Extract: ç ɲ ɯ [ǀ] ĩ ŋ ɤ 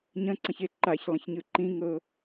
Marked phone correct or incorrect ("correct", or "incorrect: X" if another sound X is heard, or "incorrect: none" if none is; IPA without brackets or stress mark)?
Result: incorrect: ǃ